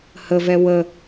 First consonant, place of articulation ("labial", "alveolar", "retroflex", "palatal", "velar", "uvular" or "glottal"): glottal